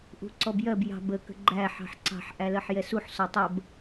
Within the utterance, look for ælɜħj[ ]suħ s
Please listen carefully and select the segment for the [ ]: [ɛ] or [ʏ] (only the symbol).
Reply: ɛ